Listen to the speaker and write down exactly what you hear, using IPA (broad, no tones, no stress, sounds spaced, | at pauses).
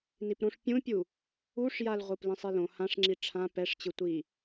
n i p ɾ õ ʂ pʲ ũ pʲ u | u ʂ j a l ʁʷ ɯ p l ĩ sˤ i l õ h ã ʂ ŋ͡ǁ i ʈ͡ʂʰ ã p ɛ ʂ t͡ɕ ɯ tʷ i